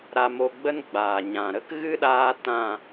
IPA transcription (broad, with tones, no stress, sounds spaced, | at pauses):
ɾ a˧ m o˧ ɡ͡b ə˦ n ɡ͡b aː˨ ɲ ã˨ ɾ ə˦ k ɣ ɨ˦ ɗ aː˧ t ã˦˨